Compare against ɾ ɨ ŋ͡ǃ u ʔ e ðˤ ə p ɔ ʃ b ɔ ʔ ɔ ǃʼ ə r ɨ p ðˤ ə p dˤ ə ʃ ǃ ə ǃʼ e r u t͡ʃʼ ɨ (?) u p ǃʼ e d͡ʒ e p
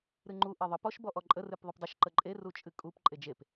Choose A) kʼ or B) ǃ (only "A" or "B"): A